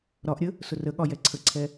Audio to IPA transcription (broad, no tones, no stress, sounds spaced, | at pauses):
ɾ ɒ ʔ ɾʲ ə | s ʊ r ə ɠ ɒ j ɛ ǀʰ ə ǀʰ ɛ